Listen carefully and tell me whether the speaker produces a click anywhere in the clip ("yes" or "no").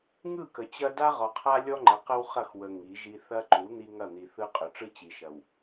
yes